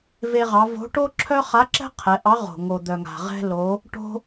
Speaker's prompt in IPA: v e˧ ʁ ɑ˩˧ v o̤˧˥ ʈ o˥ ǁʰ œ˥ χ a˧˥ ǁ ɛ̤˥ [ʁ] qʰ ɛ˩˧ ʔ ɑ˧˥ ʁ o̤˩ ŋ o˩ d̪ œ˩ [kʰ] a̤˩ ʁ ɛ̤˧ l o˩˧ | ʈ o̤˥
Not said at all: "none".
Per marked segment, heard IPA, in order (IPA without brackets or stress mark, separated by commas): none, ŋ